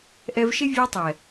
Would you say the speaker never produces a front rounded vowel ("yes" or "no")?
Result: yes